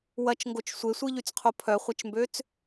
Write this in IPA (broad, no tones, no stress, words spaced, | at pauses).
wɐt͡ʃŋɡot͡ʃ sʷesʷiʎyt͡sqʰo pʰœχʷɐt͡ʃmbøt͡s